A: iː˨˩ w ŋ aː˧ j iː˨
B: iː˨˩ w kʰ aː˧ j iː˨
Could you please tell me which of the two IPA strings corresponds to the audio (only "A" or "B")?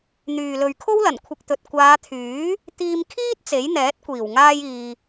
A